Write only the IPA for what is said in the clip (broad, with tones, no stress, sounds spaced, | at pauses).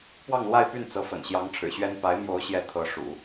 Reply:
p w ɑ˥˧ ŋ l w a˥˧ ɪ̯ p y˥˩ n t͡s ɤ˧˥ f ə̰˨˩ n ɕ j ɑ˧˥ ŋ ʈ͡ʂʰ ɻ̩˨˩ ɕ ɥ ɛ˥ n p a˧˥ ɪ̯ m j o˧˥ ʊ̯ ɕ j ɛ˧˥ t̪ʰ ɤ˧˥ ʂ ṵ˨˩˦